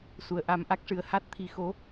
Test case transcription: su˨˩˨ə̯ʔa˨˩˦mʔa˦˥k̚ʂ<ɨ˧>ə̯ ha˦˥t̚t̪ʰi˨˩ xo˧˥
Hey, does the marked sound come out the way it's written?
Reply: no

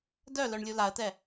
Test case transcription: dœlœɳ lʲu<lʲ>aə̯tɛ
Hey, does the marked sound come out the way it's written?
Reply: no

